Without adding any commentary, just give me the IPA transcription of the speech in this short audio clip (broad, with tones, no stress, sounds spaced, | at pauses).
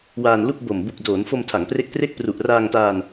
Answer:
w aː˧ n l u˥˩ k̚ b o˨˩ m b u˨˩ k̚ d oː˩˦ n f o˧ m tʰ a˩˦ ŋ p r e˦˥ k̚ t r e˥˩ k̚ p r u˨˩ ʔ r aː˧ ŋ t aː˧ n